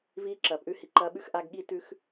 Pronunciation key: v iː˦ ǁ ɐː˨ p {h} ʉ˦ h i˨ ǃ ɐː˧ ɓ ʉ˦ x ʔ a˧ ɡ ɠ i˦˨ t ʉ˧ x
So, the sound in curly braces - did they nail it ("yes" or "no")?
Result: no